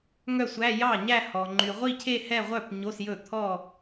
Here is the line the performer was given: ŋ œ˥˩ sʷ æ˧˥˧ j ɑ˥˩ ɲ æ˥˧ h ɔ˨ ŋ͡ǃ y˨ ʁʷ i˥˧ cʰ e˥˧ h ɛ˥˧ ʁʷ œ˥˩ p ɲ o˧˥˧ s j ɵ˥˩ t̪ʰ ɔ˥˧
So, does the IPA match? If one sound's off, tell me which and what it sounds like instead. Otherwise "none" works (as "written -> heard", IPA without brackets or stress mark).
none